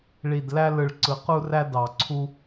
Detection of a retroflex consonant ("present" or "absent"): present